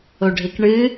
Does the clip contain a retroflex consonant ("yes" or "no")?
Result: yes